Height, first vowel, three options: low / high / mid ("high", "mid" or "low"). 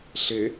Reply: mid